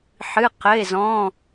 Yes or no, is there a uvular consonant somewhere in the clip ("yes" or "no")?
yes